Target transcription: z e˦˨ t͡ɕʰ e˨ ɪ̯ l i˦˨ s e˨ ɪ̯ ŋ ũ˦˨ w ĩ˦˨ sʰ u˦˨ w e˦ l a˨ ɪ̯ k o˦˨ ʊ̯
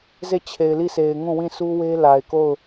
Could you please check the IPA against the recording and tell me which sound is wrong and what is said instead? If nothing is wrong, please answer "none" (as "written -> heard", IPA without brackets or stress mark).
u˦˨ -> u˦